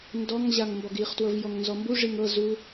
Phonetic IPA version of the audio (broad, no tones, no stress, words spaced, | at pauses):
ndɔŋ ʑaŋmbɔɡiχ twɤvjɔŋnzɔmbu ʐiŋɤ zu